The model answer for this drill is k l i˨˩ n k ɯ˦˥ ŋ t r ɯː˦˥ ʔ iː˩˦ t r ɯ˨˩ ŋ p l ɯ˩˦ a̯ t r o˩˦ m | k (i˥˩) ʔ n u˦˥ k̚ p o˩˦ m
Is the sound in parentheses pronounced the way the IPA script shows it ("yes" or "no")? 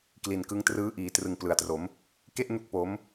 no